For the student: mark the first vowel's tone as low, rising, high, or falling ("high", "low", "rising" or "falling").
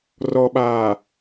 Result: low